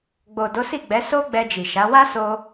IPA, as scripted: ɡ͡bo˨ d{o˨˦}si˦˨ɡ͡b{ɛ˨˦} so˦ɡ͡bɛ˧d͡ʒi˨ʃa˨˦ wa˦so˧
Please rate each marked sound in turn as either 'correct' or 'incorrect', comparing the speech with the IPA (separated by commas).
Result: correct, correct